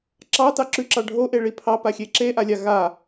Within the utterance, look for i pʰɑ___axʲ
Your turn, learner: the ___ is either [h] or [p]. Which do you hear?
p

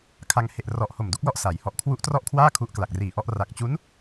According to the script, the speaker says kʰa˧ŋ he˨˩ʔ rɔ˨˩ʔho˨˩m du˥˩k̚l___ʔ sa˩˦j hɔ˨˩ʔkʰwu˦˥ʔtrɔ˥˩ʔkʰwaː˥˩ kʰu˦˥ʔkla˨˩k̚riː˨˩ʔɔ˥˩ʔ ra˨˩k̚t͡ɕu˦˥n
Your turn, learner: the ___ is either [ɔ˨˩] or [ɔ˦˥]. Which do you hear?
ɔ˦˥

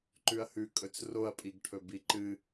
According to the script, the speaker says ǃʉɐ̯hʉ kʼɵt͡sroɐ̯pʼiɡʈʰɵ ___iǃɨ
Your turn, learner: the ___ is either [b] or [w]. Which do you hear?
b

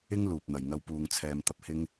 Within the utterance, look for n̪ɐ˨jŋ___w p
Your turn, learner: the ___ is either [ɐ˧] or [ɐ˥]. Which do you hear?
ɐ˧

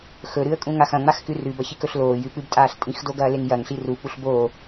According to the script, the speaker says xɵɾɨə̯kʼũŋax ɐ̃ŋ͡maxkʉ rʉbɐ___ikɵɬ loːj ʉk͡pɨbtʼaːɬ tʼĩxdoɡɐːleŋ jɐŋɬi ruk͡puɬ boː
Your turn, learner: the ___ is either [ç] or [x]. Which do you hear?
ç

